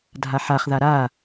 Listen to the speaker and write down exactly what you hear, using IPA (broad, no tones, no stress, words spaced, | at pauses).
dʱaħaχða ɾa